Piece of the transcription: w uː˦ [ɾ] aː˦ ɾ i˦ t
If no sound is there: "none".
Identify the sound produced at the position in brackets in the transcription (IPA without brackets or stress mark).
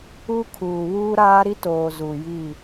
ɾ